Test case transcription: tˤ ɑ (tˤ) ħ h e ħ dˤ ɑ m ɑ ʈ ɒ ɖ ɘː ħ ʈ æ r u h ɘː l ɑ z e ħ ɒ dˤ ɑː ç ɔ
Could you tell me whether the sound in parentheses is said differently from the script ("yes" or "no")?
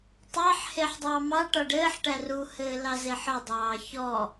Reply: yes